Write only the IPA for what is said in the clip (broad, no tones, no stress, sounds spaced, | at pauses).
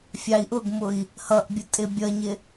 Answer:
fʲ ɑ i̯ ʔ ʊ ɡ m ʊ i̯ | h ʌ ʔ bʲ ʊ tʼ ɪ bʲ ʌ ɲ ɪ